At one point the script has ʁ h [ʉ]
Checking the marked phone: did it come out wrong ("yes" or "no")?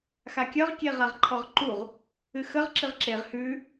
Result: no